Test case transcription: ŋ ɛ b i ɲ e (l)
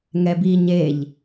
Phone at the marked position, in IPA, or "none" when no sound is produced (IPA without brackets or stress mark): ʎ